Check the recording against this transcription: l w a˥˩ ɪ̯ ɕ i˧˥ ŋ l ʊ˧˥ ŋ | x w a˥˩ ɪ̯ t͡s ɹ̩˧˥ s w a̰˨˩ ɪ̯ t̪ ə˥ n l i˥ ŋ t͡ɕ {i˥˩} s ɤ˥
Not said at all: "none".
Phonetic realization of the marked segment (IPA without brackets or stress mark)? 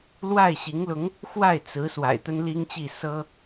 i˥˩